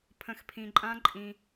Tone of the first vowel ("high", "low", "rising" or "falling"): low